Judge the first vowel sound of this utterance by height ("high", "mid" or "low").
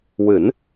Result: high